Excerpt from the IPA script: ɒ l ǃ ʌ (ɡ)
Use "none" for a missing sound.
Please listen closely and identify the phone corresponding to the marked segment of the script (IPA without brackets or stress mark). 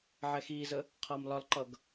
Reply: ɡ